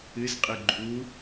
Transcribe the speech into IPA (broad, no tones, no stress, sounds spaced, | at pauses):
ɨ z qʼ ɨ ɡ͡ǃ u